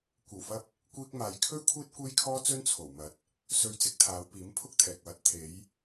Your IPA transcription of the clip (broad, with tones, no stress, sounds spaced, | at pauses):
kʷ ɐ˨˩ w f ɐ˧ p̚ | kʷ iː˧ k̚ m aː˨ j kʰ ɵ˥ ɥ kʷʰ iː˥ t̚ kʷ e˥ j kʰ ɔː˥ t͡s ɵ˥ n t͡sʰ o˨˩ w m ɐ˨˥ t̚ | s ɵ˧ ɥ t͡s ɪ˨˥ k̚ t̪ʰ aː˨˧ w p iː˨˥ m pʰ ʊ˥ k̚ t̪ʰ ɛː˨ k̚ w ɐ˧ t̚ t̪ʰ e˨˧ j